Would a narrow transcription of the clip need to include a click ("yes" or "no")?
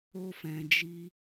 no